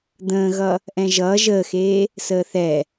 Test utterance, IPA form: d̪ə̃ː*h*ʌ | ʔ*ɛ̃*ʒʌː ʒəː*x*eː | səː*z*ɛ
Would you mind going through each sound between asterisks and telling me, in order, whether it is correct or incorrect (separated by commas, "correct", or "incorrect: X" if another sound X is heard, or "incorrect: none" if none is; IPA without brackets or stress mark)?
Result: incorrect: ɣ, correct, correct, incorrect: θ